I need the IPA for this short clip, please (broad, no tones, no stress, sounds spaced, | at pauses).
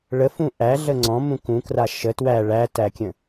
ɭ ə f ũ ʔ æ ɮ ə ŋ͡ǀ ɔ̃ m ũ k ũ k r a ʃ ə t w æ ɭ æ t æ kʲ ə̃